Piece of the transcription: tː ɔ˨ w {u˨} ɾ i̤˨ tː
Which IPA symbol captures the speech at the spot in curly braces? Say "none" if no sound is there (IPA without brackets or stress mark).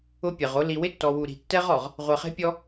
u˨